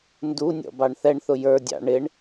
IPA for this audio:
n d u nʲ ɔ̰ b ɑ ɳ θ ɛ ɳ θ ʊ j ə˞ dʲ ɑ̰ ɳ ɪ ɳ

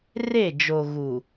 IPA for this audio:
r e˦˨ d͡ʒ o˨ ɣ u˨

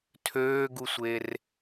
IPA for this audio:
tʰ øː ɡ u sʷ e r

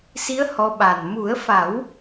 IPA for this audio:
s i˧˥ ə̯ h ɔ˧˥ ɓ a˨˩ n m u˨˩˦ ə̯ f a˨˩˦ w

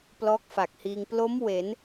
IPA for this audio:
p l ɔː˦˥ k̚ f a˨˩ k̚ h iː˧ ŋ p l o˦˥ m w e˩˦ n

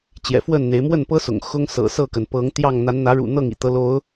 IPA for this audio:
t͡ɕ j ɛ̰˨˩ f w ə˥˨ n n̪ e˨˦ ɪ̯ m w ə˥˨ n p ɤ˦ s ʊ̰˨˩ ŋ x ʊ˦ ŋ s ɤ̰˨˩ s ɤ˥˨ k ə˩ n p ɤ˨˦ ŋ t̪ j ɑ˥˨ ŋ n̪ a˨˦ n n̪ ä˨˦ ɻ ṵ˨˩ n̪ ɤ˥˨ ŋ ḭ˨˩ t̪ ɤ˨˦ l o˨˦ ʊ̯

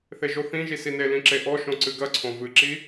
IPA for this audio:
θ e ʒ o θ ĩ ʒ i s i n e l ĩ ǁ e ʔ ɔ ʃ õ ǀ ɨ ɡ ɐ ǀʰ õ v ɨ ǁ i

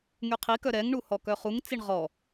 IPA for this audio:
ŋ y qʰ i k œ ɾ ɛ ŋ ɳ u h ɔ k œ χ u ŋ t͡s i ɳ ʁ ɔ

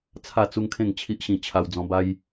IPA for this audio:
t͡sʰ a˥˧ t͡s u˦ ŋ kʰ ẽ˥˧ ŋ t͡ɕʰ i˦ ʔ ɕ ĩ˧ t͡ɕʰ a˧ w d͡z ɔ̃˧ b a˦ j

